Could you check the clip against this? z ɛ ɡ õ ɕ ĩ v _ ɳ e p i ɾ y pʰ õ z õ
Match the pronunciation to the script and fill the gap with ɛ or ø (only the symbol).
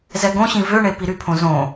ø